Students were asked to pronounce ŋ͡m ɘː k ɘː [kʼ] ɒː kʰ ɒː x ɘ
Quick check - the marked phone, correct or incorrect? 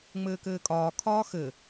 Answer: correct